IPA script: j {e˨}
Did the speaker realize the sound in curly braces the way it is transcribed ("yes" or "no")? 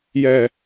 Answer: no